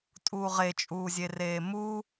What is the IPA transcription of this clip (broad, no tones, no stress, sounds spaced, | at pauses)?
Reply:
tʼ uː ʁ e t͡ʃʼ uː zʲ e r eː m u